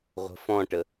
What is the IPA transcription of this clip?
ʁʷ ə̤ f ɔ̃ ʈ ə

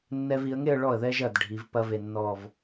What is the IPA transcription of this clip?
nː ɛ˧ v i˩˧ ə̯ ŋ e˥˧ ə̯ ɭ ɔ˧˩ ə̯ ð ɛ˧ ʒ ɐ˧˩ d ɖʱ i˩˧ v p ɐ˥ v e˧ nː ɔ˥˧ v

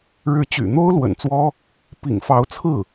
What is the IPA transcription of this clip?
ɻ ɻ̩˧˥ t͡ɕ y̰˨˩ n̪ o˥ ʊ̯ l w ə̰˨˩ n t͡s w ɔ˥ | p ḭ˨˩ ŋ f ɑ˧˥ ʊ̯ t͡sʰ ɹ̩˥˩

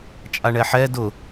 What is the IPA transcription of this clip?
t͡ʃʼ a ɳ ɛ ħ ɛ d ʊ

